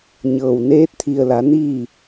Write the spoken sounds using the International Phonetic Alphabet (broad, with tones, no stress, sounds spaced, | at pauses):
ɲ ɤː˩ w n eː˧˥ t̚ t̪ʰ i˩ ə̯ l a˩˧ n iː˥˨